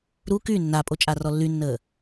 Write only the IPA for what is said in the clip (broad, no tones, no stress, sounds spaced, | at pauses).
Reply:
ɾ u k y nː a pʼ o t͡ʃʼ a r ɔ lː y nː əː